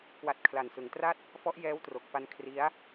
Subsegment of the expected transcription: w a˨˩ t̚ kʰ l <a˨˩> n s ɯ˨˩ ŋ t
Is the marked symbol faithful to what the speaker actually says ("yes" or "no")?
yes